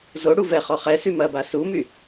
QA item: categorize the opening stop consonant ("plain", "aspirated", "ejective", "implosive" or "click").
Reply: plain